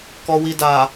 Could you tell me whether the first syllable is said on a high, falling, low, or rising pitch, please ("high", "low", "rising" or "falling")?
low